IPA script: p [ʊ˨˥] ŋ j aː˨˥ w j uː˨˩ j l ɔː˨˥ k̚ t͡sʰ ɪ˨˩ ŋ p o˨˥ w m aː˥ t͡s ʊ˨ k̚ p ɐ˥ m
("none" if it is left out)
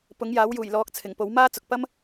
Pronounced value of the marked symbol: ʊ˨˥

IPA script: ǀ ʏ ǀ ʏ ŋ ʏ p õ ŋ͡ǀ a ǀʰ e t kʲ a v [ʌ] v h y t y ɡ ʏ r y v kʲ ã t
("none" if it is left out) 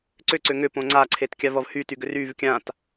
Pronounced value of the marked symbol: ʌ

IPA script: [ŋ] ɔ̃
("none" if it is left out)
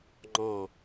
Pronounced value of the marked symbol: ŋ͡ǃ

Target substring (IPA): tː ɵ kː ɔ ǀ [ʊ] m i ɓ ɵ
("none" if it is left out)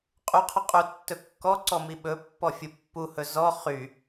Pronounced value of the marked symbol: ɔ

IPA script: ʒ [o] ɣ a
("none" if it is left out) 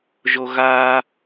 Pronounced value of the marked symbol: o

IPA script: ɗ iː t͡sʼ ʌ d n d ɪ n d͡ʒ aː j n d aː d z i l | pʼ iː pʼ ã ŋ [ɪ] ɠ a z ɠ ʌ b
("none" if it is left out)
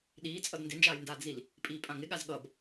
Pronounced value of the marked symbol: ɪ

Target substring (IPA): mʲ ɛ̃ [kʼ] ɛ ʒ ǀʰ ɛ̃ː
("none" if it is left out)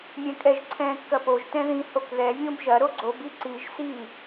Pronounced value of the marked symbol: kʼ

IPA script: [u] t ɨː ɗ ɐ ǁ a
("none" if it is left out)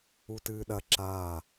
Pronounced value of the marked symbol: u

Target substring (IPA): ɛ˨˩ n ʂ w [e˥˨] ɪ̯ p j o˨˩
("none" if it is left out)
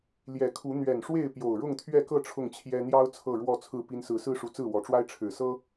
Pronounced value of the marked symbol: e˥˨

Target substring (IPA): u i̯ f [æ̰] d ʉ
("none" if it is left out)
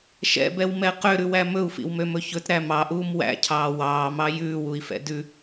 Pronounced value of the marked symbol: ɛ̰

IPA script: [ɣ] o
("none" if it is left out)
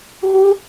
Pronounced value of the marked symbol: ɣ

